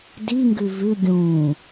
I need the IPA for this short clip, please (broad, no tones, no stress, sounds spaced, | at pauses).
d i ŋ ɡ ʉ v ʉ ɡʲ ũː